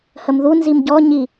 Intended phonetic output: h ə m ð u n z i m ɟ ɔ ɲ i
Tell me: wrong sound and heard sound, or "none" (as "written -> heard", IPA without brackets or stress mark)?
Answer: none